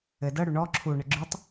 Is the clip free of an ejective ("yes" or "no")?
yes